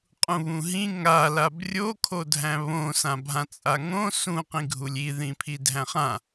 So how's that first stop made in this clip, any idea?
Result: ejective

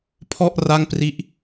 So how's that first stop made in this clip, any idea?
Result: aspirated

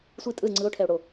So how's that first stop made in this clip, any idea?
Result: ejective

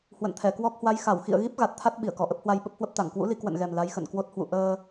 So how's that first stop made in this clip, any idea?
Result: aspirated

